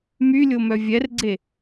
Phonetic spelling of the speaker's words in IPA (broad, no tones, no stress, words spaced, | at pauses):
mylʲomœ vʲɛrɡ͡ǀe